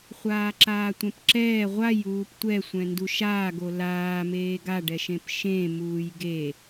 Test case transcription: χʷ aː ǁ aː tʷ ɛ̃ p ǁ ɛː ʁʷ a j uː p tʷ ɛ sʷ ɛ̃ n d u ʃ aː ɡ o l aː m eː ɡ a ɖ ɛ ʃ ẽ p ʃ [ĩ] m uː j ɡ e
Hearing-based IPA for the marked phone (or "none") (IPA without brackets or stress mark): ẽ